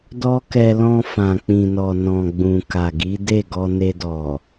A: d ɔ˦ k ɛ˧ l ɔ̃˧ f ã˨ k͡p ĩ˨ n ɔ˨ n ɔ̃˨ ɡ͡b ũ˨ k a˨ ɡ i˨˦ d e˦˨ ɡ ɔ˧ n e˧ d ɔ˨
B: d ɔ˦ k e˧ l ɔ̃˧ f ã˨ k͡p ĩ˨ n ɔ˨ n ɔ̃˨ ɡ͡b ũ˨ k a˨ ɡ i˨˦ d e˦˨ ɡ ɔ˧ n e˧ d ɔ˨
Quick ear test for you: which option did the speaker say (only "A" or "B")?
A